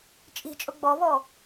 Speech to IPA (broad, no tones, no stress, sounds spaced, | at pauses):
t͡ʃʼ i̤ t͡ʃʼ ʊ ɡ͡b ɔ β ɔ